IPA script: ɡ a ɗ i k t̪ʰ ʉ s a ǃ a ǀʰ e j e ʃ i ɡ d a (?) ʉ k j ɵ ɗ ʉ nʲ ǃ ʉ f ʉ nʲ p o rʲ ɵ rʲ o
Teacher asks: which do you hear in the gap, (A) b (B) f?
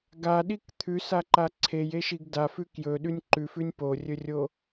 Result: B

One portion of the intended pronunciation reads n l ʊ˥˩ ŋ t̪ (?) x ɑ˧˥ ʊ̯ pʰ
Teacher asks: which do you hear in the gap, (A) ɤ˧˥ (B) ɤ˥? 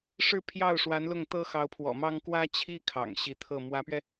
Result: B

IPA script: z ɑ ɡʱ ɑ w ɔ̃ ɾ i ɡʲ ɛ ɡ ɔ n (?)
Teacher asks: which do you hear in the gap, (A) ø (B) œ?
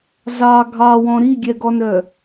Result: B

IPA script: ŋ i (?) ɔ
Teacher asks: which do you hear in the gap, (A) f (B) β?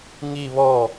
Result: B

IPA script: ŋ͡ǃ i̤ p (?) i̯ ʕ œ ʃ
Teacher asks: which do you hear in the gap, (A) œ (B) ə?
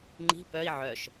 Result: A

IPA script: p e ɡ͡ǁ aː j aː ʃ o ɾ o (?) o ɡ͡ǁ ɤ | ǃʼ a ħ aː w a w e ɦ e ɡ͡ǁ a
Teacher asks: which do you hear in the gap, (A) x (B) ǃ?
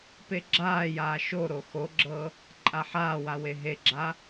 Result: A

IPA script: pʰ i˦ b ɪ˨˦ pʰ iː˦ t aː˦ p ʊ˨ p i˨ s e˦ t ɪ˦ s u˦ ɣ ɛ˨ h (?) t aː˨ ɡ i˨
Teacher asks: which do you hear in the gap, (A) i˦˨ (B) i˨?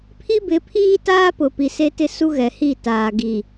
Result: A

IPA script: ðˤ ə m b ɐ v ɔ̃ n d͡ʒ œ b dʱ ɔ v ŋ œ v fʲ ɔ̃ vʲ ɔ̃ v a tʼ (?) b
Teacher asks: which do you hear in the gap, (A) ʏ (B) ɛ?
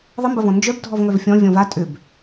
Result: A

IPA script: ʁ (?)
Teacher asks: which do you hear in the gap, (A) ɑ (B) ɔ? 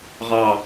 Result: A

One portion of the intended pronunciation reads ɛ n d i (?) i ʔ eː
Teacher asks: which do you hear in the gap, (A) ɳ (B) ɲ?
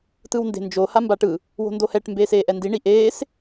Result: A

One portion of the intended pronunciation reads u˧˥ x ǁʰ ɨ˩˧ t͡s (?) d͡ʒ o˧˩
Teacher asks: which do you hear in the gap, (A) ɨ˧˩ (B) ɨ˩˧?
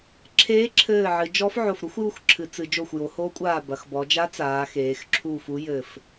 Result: B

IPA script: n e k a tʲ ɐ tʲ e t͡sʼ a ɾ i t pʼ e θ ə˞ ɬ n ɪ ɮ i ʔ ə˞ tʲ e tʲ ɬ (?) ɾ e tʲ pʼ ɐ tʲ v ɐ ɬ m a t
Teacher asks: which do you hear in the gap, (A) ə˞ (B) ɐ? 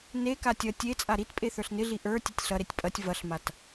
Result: B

